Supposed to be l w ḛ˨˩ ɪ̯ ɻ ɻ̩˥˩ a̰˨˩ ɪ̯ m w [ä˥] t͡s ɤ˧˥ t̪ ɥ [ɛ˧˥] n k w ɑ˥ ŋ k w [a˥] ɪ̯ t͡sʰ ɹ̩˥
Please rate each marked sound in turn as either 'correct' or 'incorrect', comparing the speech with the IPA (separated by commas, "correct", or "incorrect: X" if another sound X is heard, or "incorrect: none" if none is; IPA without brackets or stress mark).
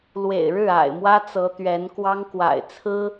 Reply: correct, correct, incorrect: a̰˨˩